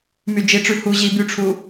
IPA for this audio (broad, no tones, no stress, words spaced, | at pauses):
myd͡ʒiʈ͡ʂʉ hu ʑi byʈ͡ʂʰu